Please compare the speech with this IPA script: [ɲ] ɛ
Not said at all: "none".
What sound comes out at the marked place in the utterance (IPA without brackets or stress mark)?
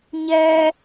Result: ɲ